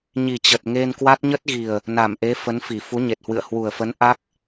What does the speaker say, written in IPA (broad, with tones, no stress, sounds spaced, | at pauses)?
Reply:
ɲ i˨˩ t͡ɕ ə˨˩ t̚ ŋ e˧ n k w a˦˥ t̚ ɲ ə˦˥ t̚ ɣ i˨˩ ə̯ | n a˧˩ m ʔ e˨˦ f ə˨˦ n f i˧˩ f u˨˦ ɲ e˨˩ t̚ h w ɨ̰˧˨ ə̯ h w u˨˩ ə̯ f ə˨˦ n ʔ a˦˥ k̚